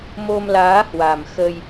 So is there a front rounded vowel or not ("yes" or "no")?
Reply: no